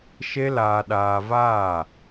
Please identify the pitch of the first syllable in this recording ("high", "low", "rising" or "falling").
high